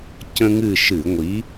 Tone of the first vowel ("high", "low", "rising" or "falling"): high